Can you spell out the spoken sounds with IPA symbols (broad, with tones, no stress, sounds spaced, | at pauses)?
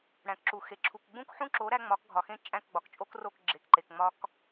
ɽ æ̃˨ k ǁ u˨ x e˨ ǁʰ u˨ k ɡ͡b ũ˦ k ħ ũ˦ ǁ o˨˦ ɾ æ˦ ŋ͡m ɒ˨˦ k ɡʱ ɒ˨ x ẽ˦ t͡ʃʼ æ̃˦˨ k ɡ͡b ɒ˨ k t͡ʃʼ o˦ k r o˦˨ k ɡ͡ǁ e˨ k ǃ e˨ k ŋ͡m ɒ˦ k